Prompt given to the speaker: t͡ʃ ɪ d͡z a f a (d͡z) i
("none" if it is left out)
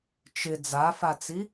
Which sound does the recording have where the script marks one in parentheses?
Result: t͡s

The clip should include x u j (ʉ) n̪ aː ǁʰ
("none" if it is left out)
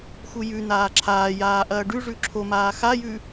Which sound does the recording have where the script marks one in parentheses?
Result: ʉ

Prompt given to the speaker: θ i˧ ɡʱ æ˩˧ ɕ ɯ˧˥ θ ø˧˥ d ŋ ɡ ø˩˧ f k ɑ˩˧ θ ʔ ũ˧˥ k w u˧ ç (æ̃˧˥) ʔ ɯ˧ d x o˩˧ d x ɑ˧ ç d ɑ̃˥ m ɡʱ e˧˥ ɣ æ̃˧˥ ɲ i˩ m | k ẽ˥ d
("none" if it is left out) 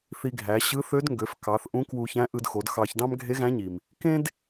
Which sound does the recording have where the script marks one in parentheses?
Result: æ̃˧˥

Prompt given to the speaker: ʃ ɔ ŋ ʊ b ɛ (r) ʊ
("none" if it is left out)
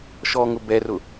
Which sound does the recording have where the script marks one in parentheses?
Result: r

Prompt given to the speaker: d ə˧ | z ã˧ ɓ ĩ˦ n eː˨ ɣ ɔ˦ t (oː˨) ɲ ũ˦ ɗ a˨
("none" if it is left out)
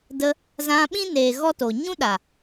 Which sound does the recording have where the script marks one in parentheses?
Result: o˨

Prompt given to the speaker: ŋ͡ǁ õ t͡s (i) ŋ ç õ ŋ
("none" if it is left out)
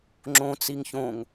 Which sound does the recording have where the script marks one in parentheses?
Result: i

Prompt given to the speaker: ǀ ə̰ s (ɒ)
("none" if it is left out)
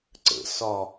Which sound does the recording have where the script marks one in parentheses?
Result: ɒ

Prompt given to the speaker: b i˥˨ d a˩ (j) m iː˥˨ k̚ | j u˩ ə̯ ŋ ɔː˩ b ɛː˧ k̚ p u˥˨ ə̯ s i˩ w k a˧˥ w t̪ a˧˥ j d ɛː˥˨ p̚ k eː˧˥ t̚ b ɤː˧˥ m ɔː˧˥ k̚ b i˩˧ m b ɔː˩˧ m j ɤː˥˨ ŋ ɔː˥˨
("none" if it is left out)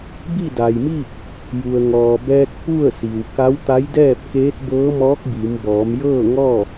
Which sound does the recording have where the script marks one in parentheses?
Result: j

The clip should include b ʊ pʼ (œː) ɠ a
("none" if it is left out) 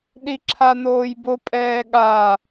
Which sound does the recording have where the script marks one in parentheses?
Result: ɛː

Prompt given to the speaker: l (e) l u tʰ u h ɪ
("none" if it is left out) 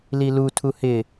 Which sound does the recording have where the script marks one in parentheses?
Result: i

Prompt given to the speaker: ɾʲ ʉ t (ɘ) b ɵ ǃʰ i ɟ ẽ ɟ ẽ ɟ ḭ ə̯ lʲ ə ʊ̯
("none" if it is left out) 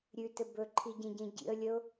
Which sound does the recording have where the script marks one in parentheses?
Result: ɘ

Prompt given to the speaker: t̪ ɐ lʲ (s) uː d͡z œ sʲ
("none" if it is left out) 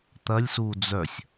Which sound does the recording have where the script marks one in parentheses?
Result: s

